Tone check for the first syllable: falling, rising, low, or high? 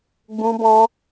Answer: high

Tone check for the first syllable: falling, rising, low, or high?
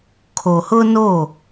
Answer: low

